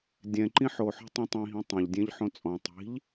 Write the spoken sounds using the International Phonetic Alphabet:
dʲ ɛ̃ ǃ ĩ ħ o ħ ɔ̤ tˤ ĩ tˤ ĩ ɦ ĩ tˤ ɛ̃ ʎ dʲ ẽ ʎ ħ õ t͡sʼ ɔ̃ tˤ i̤ ʎ

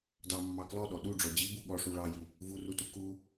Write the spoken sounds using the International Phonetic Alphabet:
d ɑ mː ɑ k l ɔ ɗ ɔ ɗ u ɖ͡ʐ ɔ d͡ʑ i b u ɠ ɔ ʂ u ɭ ɑ j i | v u r u t u k u

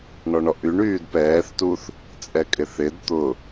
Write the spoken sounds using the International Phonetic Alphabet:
ɳ ɔ ɳ ɔ ʔ y ɳ yː d p ɛː θ t u θ | t͡sʼ ɛ kʼ ɪ θ ɪ d t̪ ʊ

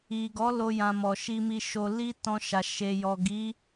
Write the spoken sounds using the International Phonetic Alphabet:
i˨ ɡ ɔ˨˦ l o˦ j ã˧ m ɔ˨ ʃ i˧ m i˧ ʃ o˧ l i˦ t ɔ̃˧ ʃ a˨ ʃ e˨ j ɔ˨ ɡ i˨˦

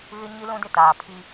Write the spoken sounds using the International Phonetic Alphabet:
ɣ ɪ˦ ɲ i˦ l ũ˦ d ɪ˦˨ t aː˨ pʰ i˦

